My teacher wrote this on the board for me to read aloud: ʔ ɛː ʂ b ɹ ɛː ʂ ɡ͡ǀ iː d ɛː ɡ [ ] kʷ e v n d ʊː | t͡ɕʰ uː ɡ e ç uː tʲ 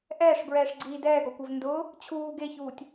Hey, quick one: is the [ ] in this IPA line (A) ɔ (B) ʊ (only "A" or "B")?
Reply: A